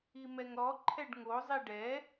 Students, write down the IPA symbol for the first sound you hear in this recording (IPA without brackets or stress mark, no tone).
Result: i